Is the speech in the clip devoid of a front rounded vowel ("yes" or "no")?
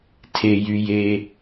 no